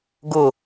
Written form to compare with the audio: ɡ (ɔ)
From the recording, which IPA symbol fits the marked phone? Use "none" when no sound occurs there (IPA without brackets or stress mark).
ʊ